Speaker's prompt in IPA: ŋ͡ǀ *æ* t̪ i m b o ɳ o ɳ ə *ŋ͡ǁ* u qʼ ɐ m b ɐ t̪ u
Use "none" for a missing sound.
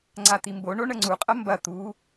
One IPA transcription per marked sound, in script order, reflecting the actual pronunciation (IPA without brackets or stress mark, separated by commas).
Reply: a, ŋ͡ǀ